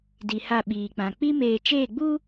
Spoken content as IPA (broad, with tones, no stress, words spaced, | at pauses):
di˨ha˦˨ɓiː˨k͡pã˨ k͡pi˦ meː˨t͡ʃeː˦˨ɡ͡bu˦